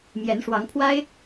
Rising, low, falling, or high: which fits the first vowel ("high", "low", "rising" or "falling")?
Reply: rising